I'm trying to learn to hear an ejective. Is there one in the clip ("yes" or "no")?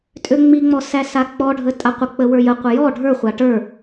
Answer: yes